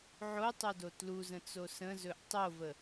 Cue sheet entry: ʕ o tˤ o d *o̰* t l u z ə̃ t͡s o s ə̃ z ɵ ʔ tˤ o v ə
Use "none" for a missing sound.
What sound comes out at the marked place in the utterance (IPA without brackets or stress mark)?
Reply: o